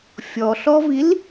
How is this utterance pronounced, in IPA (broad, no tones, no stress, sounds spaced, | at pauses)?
fʲ ɔ ɬ ɔ v i l